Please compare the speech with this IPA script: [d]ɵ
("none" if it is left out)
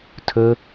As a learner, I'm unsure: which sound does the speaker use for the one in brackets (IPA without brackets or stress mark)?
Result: tʰ